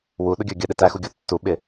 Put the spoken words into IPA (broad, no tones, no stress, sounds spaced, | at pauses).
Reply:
w u ɗ ʊ ɡʲ ə˞ ɡʲ ə ɗ ɪ t æ x u ɡʲ ɔ tː u ɓ ɪ